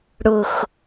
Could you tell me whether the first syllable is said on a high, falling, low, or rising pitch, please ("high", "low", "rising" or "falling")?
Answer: low